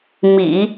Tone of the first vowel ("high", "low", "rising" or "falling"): low